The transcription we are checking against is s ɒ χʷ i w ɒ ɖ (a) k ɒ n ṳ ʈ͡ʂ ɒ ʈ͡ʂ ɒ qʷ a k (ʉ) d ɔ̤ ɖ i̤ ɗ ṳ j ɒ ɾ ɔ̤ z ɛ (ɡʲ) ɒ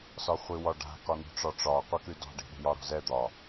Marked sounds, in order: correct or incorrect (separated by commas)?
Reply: incorrect, correct, incorrect